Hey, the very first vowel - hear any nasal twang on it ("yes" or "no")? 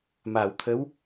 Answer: no